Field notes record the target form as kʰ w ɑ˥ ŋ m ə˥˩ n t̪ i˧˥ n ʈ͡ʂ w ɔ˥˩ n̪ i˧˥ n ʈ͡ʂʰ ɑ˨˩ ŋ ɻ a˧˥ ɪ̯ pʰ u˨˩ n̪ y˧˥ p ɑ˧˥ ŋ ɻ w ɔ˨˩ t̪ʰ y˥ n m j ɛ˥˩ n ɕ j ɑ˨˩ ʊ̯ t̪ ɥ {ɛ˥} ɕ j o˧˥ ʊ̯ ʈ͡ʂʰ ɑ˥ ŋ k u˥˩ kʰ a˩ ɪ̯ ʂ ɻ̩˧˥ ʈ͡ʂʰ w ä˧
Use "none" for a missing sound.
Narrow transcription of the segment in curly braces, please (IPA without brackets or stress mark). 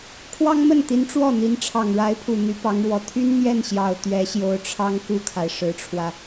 ɛ˧˥